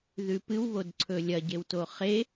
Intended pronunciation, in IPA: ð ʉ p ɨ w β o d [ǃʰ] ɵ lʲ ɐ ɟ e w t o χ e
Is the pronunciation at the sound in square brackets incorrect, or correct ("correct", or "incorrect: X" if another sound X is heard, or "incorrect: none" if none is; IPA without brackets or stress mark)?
incorrect: ǀʰ